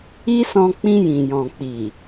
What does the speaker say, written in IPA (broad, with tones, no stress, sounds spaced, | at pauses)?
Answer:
i˦ s ɔ̃˧ k͡p ĩ˧ j ĩ˨ j ɔ̃˨ k͡p i˨